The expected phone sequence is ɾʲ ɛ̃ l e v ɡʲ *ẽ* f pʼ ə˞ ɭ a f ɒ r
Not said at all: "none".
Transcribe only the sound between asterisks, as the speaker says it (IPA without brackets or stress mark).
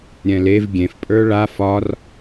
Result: ẽ